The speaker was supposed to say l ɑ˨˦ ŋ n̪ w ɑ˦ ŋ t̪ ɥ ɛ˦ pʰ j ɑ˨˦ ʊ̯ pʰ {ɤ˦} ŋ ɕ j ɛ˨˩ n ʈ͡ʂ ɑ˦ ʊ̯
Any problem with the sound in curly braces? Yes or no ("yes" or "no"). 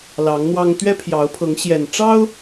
yes